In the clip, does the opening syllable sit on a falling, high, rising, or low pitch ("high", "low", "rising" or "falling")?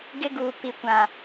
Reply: high